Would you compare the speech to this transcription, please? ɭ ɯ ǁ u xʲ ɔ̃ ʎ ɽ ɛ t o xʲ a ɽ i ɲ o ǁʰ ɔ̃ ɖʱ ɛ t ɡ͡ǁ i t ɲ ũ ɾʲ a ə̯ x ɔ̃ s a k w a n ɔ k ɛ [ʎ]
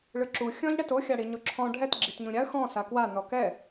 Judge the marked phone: incorrect: none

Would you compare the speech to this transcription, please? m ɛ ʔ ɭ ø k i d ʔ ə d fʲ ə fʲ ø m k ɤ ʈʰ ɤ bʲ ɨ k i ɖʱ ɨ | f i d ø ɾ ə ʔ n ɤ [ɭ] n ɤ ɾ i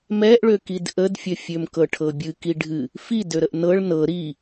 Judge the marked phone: correct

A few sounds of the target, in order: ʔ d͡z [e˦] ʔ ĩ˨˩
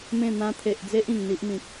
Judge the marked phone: correct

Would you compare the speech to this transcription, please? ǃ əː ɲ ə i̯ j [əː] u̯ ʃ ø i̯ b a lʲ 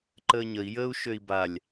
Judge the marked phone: correct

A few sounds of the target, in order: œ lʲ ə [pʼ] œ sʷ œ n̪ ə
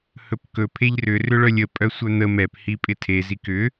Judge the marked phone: correct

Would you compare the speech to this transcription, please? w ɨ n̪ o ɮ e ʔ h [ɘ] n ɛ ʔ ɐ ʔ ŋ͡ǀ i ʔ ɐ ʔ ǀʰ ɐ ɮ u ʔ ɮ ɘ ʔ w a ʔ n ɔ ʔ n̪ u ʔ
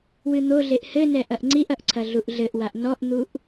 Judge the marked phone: correct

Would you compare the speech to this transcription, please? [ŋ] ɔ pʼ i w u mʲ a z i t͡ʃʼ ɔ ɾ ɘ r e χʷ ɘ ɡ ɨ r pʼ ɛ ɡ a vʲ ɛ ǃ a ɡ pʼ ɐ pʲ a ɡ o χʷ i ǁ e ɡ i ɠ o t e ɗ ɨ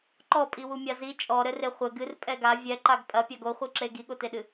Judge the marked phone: incorrect: ǃ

